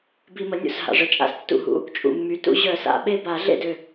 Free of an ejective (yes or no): no